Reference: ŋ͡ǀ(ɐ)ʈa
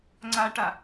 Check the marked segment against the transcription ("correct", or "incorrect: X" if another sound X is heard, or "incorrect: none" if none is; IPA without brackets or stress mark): incorrect: a